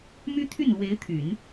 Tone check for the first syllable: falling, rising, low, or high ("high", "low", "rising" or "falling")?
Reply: high